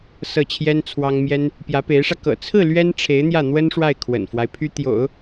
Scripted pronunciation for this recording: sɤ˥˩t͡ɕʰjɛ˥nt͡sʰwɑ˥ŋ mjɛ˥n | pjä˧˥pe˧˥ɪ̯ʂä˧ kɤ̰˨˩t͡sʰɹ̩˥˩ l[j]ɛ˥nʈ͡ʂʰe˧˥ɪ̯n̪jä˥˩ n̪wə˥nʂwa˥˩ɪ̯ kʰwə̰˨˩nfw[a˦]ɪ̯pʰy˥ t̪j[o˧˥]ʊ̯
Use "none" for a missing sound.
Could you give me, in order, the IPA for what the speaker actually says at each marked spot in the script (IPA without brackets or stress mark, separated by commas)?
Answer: ɥ, a˦, o̰˨˩˦